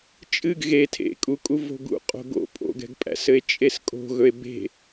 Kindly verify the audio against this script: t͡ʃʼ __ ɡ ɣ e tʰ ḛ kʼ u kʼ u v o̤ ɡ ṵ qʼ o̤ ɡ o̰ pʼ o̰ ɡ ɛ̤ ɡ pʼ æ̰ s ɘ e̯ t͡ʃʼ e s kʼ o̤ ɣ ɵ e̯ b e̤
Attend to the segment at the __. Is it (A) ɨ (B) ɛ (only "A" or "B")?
A